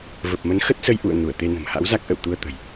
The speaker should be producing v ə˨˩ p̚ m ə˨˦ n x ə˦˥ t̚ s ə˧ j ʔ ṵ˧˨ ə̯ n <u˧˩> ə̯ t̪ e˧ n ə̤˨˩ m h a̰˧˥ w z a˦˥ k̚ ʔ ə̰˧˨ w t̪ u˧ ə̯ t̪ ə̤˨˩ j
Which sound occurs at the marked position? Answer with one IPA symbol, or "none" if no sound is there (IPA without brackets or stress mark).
u˧˩